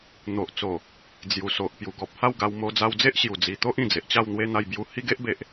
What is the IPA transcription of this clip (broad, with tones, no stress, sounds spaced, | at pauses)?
n̪ o˨ ʔ t͡s o˨˩ | d͡z j u˨˩ s o˨ ʔ p j u˨˩ ɡ ɔ˨ p̚ h a˥˧ w ɡ a˧ w m o˧ d͡z a˧ w d͡z e˦ ʔ ɕ j u˨˩ d͡z i˨˩ t̪ o˦ ʔ ĩ˨˩ d͡z e˨ ʔ t͡ɕ a˥˧ w n̪ w e˦ n̪ a˧ j b j u˧ h i˦ ɡ e˦ ʔ b e˨ ʔ